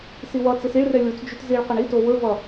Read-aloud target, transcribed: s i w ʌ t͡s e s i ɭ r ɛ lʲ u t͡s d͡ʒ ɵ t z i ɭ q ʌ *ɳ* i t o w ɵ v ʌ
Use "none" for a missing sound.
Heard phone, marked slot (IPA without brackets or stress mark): ɳ